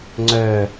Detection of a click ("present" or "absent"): present